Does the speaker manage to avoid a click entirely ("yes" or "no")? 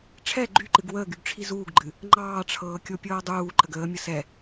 no